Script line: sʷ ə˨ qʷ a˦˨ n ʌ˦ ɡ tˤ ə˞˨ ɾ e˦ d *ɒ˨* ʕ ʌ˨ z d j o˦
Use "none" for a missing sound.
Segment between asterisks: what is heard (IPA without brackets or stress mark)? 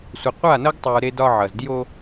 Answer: ɒ˦